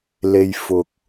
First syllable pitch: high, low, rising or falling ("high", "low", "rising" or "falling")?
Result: low